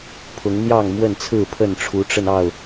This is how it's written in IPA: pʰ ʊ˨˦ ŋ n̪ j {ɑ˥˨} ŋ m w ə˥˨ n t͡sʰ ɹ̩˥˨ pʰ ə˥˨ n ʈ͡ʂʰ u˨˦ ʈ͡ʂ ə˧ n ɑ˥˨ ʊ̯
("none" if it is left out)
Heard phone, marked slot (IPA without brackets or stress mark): ɑ˥˨